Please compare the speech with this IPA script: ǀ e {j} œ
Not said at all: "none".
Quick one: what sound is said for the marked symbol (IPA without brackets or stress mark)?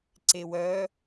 w